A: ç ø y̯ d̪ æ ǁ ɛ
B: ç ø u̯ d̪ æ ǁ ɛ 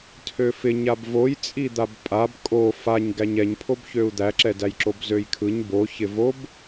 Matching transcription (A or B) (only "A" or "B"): B